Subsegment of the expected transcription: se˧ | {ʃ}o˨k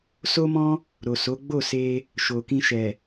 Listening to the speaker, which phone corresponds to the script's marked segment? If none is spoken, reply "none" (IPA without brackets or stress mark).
ʃ